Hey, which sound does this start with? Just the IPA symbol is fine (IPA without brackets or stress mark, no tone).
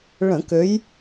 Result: ɭ